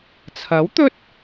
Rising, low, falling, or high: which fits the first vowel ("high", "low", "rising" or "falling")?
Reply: rising